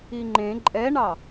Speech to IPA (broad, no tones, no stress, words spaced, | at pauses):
iŋ͡ǃẽ ǃʼɛɳɑ